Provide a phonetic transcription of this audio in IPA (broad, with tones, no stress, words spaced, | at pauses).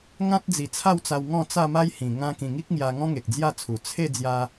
ŋã˦t̚d͡zi˨˩t͡sʰa˥˧wt͡sa˧w ŋɔ̃˥˧t͡sa˥˧ma˦jhĩ˨˩ ŋã˧kĩ˨˩ ŋi˦k̚ŋja˧ŋɔ̃˦ŋe˨k̚ d͡zja˥˧t͡sʰu˨˩ t͡sʰe˥˧ d͡zja˧